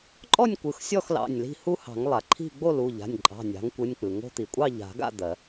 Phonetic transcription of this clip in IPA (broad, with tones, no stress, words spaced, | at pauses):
ǃʼɔ˥˨nʲ kʷɯ˩˧˩xsʲɔ˥˨x lɑ̰˩˧˩nʲli̤˥˨ hu˦hɑ̤˨˩˦ŋ lˠa˩ǃʰi̤˥˨ ɡ͡bo˥˨lu˩˧˩ʎa̤˩˧˩nʲǃʼɑ̤˩˧˩ nʲɑ̤˩˥ŋkʷɯ˩˧˩nʲk͡pɯ˩ ŋo̤˦t̪i˩ kʷʼɑ˥˨ʎa̤˨˩˦ɡa̰˥˨ d̪ɜ˨˩˦